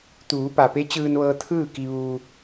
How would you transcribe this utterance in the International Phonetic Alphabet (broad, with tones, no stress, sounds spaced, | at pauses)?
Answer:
t̪ uː˩˧ p a˩ p e˧˥ t͡ɕ ɯː˧ n ʋ ɤː˧ t̪ʰ ɯː˥˨ k i˧ ʋ uː˧